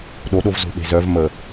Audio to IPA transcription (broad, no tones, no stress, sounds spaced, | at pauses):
ɗ o ɗ o v z o̤ ɓ e̤ z œ v m ə